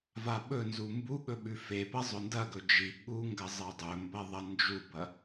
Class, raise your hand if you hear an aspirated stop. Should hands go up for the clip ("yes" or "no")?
no